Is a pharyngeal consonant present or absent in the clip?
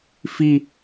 absent